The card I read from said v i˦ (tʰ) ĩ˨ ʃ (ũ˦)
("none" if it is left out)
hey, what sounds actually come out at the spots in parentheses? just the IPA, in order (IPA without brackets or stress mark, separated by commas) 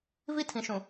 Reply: tʰ, ũ˨